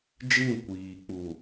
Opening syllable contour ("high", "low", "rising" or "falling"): falling